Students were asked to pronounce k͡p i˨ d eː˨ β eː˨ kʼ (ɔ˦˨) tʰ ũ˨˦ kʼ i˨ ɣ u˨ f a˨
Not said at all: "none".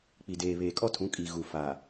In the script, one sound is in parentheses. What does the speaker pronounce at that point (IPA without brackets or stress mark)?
ɔ˦